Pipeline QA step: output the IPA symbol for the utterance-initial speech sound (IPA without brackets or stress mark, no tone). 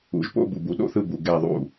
ṵ